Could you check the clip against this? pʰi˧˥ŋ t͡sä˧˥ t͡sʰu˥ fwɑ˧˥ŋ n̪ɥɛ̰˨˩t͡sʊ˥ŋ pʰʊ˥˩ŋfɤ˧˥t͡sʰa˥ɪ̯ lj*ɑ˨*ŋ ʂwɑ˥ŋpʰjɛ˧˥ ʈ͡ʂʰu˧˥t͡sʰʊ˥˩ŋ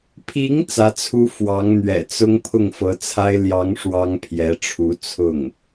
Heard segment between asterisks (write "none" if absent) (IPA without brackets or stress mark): ɑ˧˥